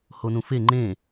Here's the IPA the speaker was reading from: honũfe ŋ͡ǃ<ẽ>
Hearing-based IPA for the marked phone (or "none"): ẽ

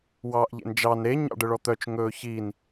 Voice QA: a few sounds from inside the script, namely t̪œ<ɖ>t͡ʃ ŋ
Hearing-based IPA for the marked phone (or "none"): none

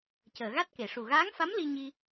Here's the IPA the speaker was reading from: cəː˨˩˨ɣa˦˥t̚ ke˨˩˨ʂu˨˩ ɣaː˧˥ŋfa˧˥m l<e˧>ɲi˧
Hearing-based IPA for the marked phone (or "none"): i˧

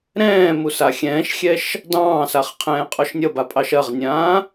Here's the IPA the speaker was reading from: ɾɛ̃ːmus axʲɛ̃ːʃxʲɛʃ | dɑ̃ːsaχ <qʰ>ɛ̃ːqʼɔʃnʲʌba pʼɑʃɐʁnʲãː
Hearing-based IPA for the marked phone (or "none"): qʰ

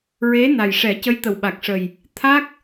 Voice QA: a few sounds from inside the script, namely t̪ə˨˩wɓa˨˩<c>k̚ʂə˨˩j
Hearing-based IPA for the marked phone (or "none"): none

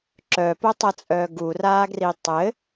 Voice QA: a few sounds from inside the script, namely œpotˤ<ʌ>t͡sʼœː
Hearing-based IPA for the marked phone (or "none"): ʌ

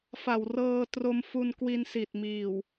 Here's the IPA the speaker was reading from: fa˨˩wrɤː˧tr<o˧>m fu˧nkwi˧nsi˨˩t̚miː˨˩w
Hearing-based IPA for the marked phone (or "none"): o˧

